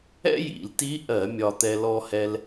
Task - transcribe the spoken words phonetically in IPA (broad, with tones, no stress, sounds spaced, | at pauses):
ɛ̰˥ j ḭ˧˩˧ l t i˧˥ ʔ ɜ˧˩˧ mʲ ɒ˧ t̪ ɛ˧ l ɔ˧ h ɛ˧ l